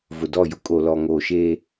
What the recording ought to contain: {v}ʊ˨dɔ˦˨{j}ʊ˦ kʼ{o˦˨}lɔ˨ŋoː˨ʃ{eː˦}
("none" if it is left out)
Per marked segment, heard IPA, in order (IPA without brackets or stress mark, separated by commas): v, j, o˨, eː˦